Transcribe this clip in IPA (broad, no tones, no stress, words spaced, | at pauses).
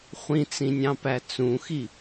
χʷĩt͡sĩnʲɑ̃pæ t͡sũxi